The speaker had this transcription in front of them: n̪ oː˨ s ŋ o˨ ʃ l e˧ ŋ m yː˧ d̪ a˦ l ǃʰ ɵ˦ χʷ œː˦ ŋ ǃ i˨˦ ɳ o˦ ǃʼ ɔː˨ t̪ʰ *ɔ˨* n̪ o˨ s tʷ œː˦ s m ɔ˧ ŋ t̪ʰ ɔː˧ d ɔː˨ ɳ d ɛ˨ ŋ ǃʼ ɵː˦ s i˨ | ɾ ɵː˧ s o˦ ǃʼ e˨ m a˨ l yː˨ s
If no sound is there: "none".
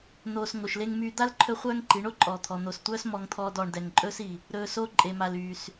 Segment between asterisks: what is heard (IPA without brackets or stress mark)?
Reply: ɔ˨